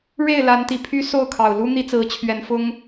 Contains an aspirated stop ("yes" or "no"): yes